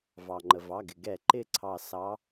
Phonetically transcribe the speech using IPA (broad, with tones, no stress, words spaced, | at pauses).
vɑ˩ŋ͡ǃə˩vɑ˩˧˩ɡɪ˩ ɡɛ˧˩˧ ǃɪ˥˧ǀʰɑ˧˩ sɑ˨˦